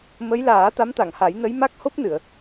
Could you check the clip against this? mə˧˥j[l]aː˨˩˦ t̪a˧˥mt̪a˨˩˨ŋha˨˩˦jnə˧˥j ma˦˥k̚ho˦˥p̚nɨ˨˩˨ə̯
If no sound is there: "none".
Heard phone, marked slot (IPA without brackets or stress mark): l